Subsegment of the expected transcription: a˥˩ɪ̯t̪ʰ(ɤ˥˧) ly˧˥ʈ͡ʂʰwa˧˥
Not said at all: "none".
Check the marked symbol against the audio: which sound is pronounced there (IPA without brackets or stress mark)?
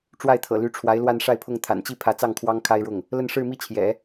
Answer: ɤ̰˨˩